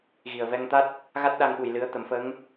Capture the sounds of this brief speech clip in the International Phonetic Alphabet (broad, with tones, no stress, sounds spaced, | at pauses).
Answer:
ɣ i˨˩ ə̯ v ɛ˧ ŋ t̪ a˦˥ t̚ | ɣ a˦˥ t̚ ɗ a˧ ŋ ɓ u˨˩ j l ɨ˧˥ ə̯ t̪ ə˨˩˦ m f ə˧˥ ŋ